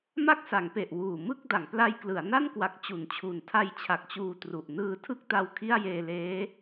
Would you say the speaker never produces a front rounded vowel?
yes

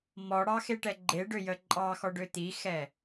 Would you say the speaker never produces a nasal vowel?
yes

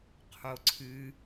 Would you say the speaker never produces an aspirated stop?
no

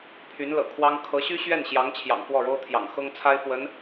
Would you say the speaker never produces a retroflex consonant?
no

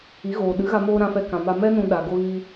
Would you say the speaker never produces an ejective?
yes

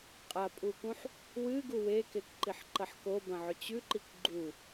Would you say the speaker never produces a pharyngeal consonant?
no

